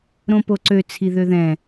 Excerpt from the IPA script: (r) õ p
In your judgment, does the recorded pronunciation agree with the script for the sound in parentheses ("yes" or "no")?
no